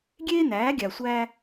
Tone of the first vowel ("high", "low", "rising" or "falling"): high